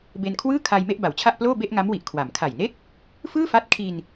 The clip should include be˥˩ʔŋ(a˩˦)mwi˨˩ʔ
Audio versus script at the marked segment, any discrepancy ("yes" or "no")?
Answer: yes